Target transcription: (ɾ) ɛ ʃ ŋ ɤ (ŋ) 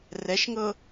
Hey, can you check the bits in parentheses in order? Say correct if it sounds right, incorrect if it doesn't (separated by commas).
incorrect, incorrect